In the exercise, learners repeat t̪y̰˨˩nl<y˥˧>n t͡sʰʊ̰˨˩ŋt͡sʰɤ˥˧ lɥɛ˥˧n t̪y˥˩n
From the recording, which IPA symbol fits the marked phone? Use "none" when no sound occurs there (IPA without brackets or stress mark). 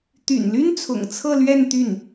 y˥